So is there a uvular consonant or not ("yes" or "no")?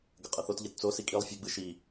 yes